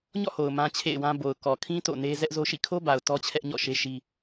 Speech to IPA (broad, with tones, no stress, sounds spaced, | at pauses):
ɲ ɔ̰˦˨ h o˨ ʊ̯ m ã˦ t͡ɕʰ ḛ˦˨ ɪ̯ w ã˦ b o˨ ʊ̯ k ɔ˨ kʰ ĩ˦ t o̰˦˨ n e˦ z ɛ˦ ʔ z o˦ ʃ ḭ˦˨ kʰ o˦ b a˨ ʊ̯ t ɔ˦ t͡ɕʰ ɛ˦ ʔ ɲ ɔ̰˦˨ ʃ e˦ ʃ i˦